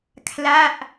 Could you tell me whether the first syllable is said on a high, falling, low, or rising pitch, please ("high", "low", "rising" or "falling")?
falling